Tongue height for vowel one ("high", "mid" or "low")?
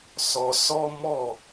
mid